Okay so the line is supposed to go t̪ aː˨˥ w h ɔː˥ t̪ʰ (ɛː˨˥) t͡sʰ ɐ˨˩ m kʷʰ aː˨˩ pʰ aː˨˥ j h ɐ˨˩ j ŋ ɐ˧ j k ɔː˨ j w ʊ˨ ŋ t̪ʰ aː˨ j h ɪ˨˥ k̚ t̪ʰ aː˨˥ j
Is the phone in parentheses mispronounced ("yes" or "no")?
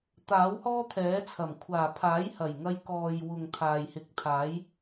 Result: no